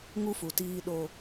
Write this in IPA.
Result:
ŋ u˦ f u˨ t iː˦ ɗ o˦

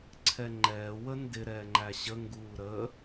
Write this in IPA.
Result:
ǀʰ ɛ ŋ͡ǃ ɛː w ə n d ɪ ɾ ɛː ŋ͡ǃ æ ɕ ə ŋ ɡ uː ɾ ə

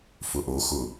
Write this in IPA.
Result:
f ʊ ʔ o x ʊ

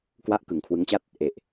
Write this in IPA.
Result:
k w a˥˩ ʔ k ɯ˨˩ ŋ kʰ w ɯ˦˥ ŋ t͡ɕ a˥˩ t̚ | ʔ e˨˩ ʔ

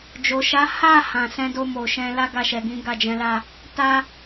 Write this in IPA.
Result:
d͡ʒ o˨ ʃ a˨˦ h a˦˨ h ã˨ s ɛ̃˧ d o˧ m o˨ ʃ ɛ̃˧ l a˦ ɡ a˦˨ ʃ ɛ˨ ɡ ĩ˨˦ ɡ a˦˨ d͡ʒ ɛ̃˨˦ l a˦˨ | t a˧

